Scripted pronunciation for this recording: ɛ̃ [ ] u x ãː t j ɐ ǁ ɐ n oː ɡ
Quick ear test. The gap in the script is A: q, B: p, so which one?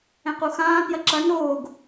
A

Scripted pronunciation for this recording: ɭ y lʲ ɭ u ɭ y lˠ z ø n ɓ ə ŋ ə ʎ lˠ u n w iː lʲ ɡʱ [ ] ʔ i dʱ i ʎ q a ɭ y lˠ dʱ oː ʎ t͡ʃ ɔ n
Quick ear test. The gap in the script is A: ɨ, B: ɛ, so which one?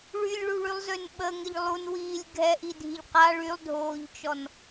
B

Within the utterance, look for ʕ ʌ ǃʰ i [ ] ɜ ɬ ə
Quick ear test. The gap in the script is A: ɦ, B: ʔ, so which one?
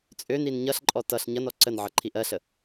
B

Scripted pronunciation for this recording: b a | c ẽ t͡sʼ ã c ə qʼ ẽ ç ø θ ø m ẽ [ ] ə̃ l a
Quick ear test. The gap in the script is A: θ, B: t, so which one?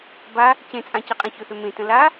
B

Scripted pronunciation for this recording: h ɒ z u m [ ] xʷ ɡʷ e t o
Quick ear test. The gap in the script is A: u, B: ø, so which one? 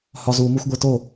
A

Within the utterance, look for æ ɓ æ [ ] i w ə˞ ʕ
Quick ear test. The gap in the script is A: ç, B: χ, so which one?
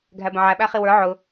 B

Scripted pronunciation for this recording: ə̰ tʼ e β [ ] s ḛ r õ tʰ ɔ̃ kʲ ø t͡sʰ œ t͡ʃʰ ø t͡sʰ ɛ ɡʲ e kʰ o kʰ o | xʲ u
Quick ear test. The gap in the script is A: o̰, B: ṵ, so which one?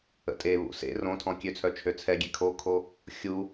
B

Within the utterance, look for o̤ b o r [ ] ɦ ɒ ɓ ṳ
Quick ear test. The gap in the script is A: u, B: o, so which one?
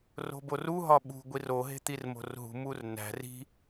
A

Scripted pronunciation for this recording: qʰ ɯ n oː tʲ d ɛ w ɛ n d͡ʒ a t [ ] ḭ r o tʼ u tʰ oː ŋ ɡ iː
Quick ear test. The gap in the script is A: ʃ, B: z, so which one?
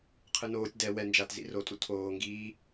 B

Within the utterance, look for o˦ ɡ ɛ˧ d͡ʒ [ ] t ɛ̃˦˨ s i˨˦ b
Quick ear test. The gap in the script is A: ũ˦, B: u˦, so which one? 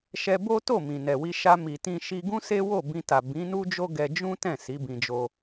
A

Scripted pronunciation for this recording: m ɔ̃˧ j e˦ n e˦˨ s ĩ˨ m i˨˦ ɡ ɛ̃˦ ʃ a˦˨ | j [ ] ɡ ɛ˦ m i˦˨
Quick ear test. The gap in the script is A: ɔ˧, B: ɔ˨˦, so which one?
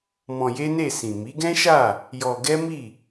A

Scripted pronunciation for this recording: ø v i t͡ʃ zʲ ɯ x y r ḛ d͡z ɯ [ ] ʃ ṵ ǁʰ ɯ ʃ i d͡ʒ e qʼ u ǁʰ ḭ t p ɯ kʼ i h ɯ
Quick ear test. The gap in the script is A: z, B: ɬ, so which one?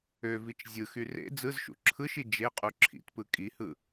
A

